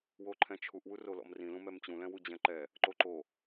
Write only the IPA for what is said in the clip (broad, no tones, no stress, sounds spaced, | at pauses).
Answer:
w o ǃʰ ɛ̃ t͡ʃʰ u ʔ w u r o l ɔ̰ m r ĩ l ũ m ɛ m t͡ɕ ũ l ɛ̃ w u d͡ʑ ɛ̃ ǃ ɛ | ǃ o ǃ o